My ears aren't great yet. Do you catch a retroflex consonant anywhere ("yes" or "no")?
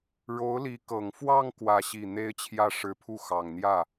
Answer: yes